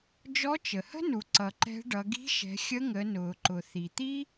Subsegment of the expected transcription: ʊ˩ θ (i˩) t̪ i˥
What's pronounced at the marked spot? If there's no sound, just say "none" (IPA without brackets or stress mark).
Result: i˩